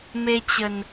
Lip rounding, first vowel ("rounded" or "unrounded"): unrounded